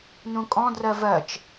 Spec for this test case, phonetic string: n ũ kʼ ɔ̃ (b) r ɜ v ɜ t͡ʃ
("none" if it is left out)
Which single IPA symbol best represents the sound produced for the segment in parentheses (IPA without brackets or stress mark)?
d